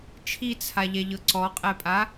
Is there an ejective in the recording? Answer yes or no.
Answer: yes